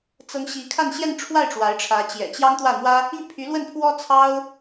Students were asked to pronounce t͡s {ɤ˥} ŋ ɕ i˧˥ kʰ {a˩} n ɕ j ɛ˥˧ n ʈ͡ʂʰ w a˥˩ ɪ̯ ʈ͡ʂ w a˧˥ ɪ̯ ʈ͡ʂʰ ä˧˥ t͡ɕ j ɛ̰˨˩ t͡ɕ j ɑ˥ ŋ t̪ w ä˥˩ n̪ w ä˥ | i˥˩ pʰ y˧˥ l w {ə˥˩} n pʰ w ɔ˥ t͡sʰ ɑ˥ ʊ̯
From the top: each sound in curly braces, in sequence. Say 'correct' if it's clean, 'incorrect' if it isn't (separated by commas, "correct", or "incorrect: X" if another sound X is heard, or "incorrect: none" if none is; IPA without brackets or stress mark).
correct, incorrect: a˥˧, correct